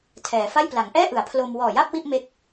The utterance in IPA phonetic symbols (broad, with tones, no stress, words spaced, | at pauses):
tʰɛː˩˦fa˥˩j pla˩˦ŋʔɛː˥˩ʔɯ˩˦a̯ pʰlo˧m wɔː˨˩ja˥˩p̚ wi˥˩ʔme˦˥k̚